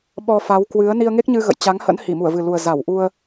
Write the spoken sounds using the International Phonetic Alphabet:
ɓɔ˧ fa˨˦w kwɨ˨˦ə̯ ni˧ə̯ŋe˦˥k̚ɲɨ˧ ɣə̰˧˨jt͡ɕa˨˦ŋ hə̰˧˥n hi˧˩mu˧˩ə̯vɨ˨˩lu˨˩ə̯ za˧˩wʔu˧ə̯

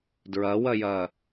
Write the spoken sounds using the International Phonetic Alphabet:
dɹɐwɐjɐ

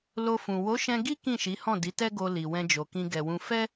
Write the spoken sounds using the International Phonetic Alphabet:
lo˧fũ˨ wo˨˦ʃɛ̃˧ɡi˦ kĩ˦˨ʃi˨˦hɔ̃˦˨ di˨˦tɛ˦ɡo˧li˨ wɛ̃˧d͡ʒo˨kĩ˧ ɡɛ˨wũ˧ fɛ˦

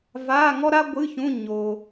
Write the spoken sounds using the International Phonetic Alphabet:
va˧˥˧ ŋɔ˥ɾa˥ɡʷɨ˧˥˧çũ˧˥˧ ɲo˧

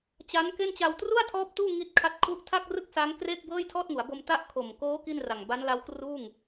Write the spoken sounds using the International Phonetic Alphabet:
t͡ɕa˦˥n ke˥˩nt͡ɕa˧w tru˥˩a̯tʰɔː˦˥p̚ tuː˥˩ŋi˦˥t̚kʰa˦˥t̚ kʰu˦˥ʔtʰa˥˩k̚rɯ˥˩k̚ sa˦˥ŋkre˥˩k̚ bɤː˥˩jtʰɔː˥˩t̚ŋu˩˦a̯bo˧m ta˦˥ʔkʰo˨˩mkoː˦˥ ki˥˩nra˨˩ŋ ba˦˥nla˦˥wkruː˥˩ŋ

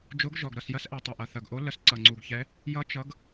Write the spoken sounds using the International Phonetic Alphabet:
d͡ʒo˧˥ɡʒɔ˨˩ɡ ɾʌ˨˩sjɐ˧˥sʔɛ˨˩tˤɐ˨˩ ʔɐ˨˩θɐ˨˩ɡʔo˧˥ lə˧˥sǀʌ˨˩ŋ͡ǀu˨˩ɡçɛ˧˥ | jʌ˧˥ t͡ʃʌ˧˥ɡ

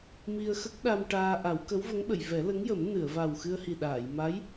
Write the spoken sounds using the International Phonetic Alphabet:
mi˧ə̯xə˦˥k̚ɗa˧m ʈaː˧ʔa˨˩˦w kə˧˥wvə˧˥ŋɓə˨˩˨j vɛ˨˩˦lə˧˥ŋjə˨˩˦m nɨ˨˩˨ə̯va˨˩wxɨ˧ə̯ hi˨˩ɗaː˨˩˨j ma˧˥j

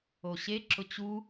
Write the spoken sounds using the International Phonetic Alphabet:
oɕe ǁʊt͡ɕu

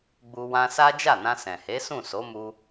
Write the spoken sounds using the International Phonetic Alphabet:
ɡ͡bu˧ wã˧sa˦ d͡ʒa˦˨nã˧ sɛ̃˨he˨˦sũ˦˨ so˨˦mu˧

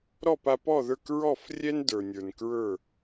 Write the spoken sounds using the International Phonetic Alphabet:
ɾɔ˥˩pa˧pɔ˥˩ðə˞˥˩k ɹɔ˥˩f rʲɛ˥ndə˞˩nʲə˞˩n kɹə˞˥˩

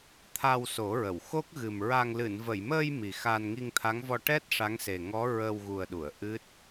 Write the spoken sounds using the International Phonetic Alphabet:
t̪ʰa˧wso˨˩˦ɹə˨˩˨w xo˦˥k̚ɣɨ˨˩m ɹa˧ŋ lɨ˨˩˨nvə˨˩˨jməː˧j mi˨˩xa˧n ŋi˧ŋt̪ʰa˧˥ŋvɔ˧ ʈɛ˦˥t̚ ʂa˧˥ŋse˨˩ŋɔ˧˥ ɹə˧wɣu˨˩ə̯ɗu˨˩˨ə̯ ʔɨ˦˥t̚

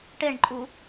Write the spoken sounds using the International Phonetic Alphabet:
ʈeɳǃʼu

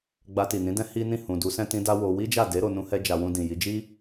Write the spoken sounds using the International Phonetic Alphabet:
ɡ͡ba˧ti˨nĩ˨˦dɛ̃˦ hi˦ nĩ˦˨hũ˨du˨˦sɛ̃˦ tĩ˧ da˦wo˧ wi˦d͡ʒa˦˨de˨˦ ɾo˧nũ˦hɛ˦d͡ʒa˧ wũ˧dĩ˨ji˨˦ d͡ʒi˦

